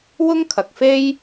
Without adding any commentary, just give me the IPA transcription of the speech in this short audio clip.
w ʊ˥ ŋ kʰ ɐ˨ k̚ f e˥ j

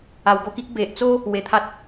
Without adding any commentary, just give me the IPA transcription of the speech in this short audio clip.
a˨˩ w ɡ o˧ k i˦ k̚ b e˨ ʔ t͡s o˦ | w e˧ t̪ʰ a˦ t̚

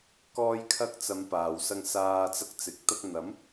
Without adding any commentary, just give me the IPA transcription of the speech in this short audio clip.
k ɔː˧ j kʰ ɐ˧ k̚ t͡s ɐ˨˧ m p aː˨ w s ɐ˧ ŋ s aː˧ t͡s ɐ˧ k̚ t͡s ɪ˨˥ k̚ t̪ ɐ˧ k̚ n̪ ɐ˨˥ m

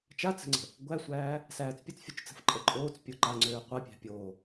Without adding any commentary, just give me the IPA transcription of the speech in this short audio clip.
t͡ʃ a t͡s ə̤ ŋ͡ǀ ə̤ | ɡʷ æ sʷ æː | s æː t͡s pʲ ə t͡s fʲ o t͡ʃ t͡s ə̤ f ǃʼ ə ǃʼ oː t͡s pʲ o ǃ a ŋ͡ǀ øː qʷ a pʲ æ̤ pʲ oː

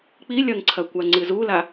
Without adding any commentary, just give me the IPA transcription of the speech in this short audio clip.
k͡p i lʲ ɐ ŋ ǀʰ ɐ kʷ a ŋ͡ǀ ɨ z u l a

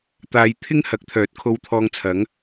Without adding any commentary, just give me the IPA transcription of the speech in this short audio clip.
t̪ aː˨˧ j t̪ʰ ɪ˥ ŋ h ɐ˨˥ k̚ t̪ʰ œː˨˥ t̚ kʰ o˧ w t̪ʰ ɔː˧ ŋ t͡sʰ ɐ˨˥ ŋ

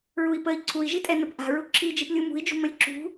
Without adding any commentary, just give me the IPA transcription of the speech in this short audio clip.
ɹ u i̯ p ə i̯ ǀʰ u i̯ ʒ i tʼ ɛ n ə p ʔ a̤ ɹ u ǁʰ i d͡ʒ i p lʲ u m ṳ i̯ d͡ʒ ṳ m ə lʲ ǁ ṳ

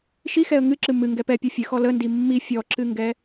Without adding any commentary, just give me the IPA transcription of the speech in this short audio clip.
ʃ i x ɛ ə̯ ŋ ɨ ǁ ɨ m ɨ ŋ ɡ ɛ p ɛ pʲ ɔ fʲ ɨ x ɔ l ə n d i mː i fʲ ɔ ǁ ɨ ŋ ɡ ɛ

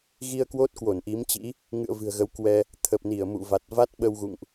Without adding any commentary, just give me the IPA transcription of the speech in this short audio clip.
ɣ i˧ ə̯ k w o˦˥ t̚ k w o˧˩ n ʔ i˨˦ m t͡ɕ ḭ˧˥ | ŋ ɨ̰˧˨ ə̯ v ɨ̤˨˩ ə̯ ɣ ə˨˦ w k w ɛ˧ | t̪ʰ ə˨˩ p̚ n i˧˩ ə̯ m ṵ˧˨ v a˨˩ t̚ v a˦˥ t̚ ɓ ə˧ w ɣ ṵ˧˨ ŋ ʔ

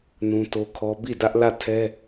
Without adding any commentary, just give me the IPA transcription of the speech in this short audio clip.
n ũ˦ t o˦ kʰ ɔ˦ b i˦˨ d ä˦ ʔ l ä˦˨ tʰ ɛ˦

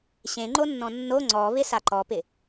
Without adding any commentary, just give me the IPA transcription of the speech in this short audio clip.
ɕ ẽ ŋ͡ǃ o nː ɔ̃ nː o ŋ͡ǀ ɔ β ɪ s a ǃ ɔ p ɪ

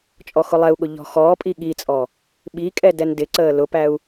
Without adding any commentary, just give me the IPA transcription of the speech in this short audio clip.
t͡ʃʼ ɔ x ʊ lˠ ɛ u̯ ɠ ʊ ʎ ɔ̤ x ɔː pʼ i ɠ i t͡sʼ ɔ | ɓ i kʼ ɛ d ɛ n d ɪ ǀ əː l ʊ p æ u̯

